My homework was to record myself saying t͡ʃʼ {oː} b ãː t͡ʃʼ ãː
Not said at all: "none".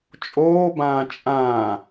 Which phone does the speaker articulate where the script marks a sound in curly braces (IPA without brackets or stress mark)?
oː